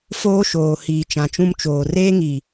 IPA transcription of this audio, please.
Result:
f oː˦ ʃ oː˨ h iː˨ t͡ʃ ã˨ t͡ʃ ũ˦ m t͡ʃ oː˨ r eː˦ ŋ i˨

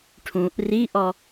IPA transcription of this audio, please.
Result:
ʈʰ ũ ʔ r i ʔ ɔ

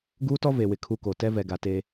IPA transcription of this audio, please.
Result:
ɡ uː˦ t ɔ˦ v e˨ w ɪ˨ kʰ u˦ k o˨ t ɛ˦ v ɛ˨ ɡ a˨ t e˦

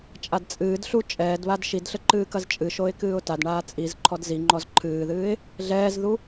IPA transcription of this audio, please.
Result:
t͡ʃʼ a d t͡sʼ ɨː d ɬ u t͡ʃʼ ɛː d β a d ʃ i d ɬ ɘ ǃ ɨː k ɐ z t͡ʃʼ ɨ ʃ o ɪ̯ k ɨː ʊ̯ t a d ɳ aː t͡sʼ i z ǃʰ ɔ d z i ŋ͡ǃ ɔ z ǃʰ ɨː ð ɨː ɪ̯ | ɮ ɛː z ð u

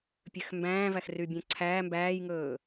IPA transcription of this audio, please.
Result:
pʲ ø x m b æ̃ː v æ x r y bʲ æ̃ ǀʰ æː m b æː j ŋ ɵː

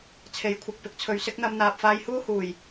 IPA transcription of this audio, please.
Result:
t͡sʰ e˨˥ j kʷʰ ɐ˨ k̚ p ɪ˨˥ k̚ t͡sʰ ɵ˨˧ ɥ s ɪ˨˥ k̚ n̪ ɐ˧ m n̪ aː˨ p̚ f aː˧ j h uː˥ h uː˨˩ j

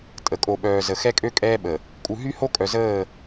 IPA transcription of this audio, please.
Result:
tʼ ə˨ kʼ o˨ ɓ œː˨ z ə˨ x ɛ˦ kʼ ø˦ kʼ ɛː˦ ɓ ə˨ | kʼ u˨ ɦ y˦ h o˦ kʼ œ˨ z əː˦˨

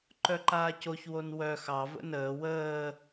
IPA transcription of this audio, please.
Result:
ǃ œ ǃ aː c o ç w o n w œ x ɑ v ə̰ n əː w əː

